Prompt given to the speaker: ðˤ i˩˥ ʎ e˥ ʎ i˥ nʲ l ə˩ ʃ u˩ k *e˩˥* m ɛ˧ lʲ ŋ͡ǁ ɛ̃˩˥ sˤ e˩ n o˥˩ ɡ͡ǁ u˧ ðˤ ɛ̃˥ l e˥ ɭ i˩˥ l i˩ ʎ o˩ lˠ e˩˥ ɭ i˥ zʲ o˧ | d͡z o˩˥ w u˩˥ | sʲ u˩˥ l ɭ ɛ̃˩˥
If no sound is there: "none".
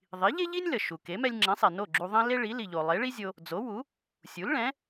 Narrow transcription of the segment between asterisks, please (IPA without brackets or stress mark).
e˩˥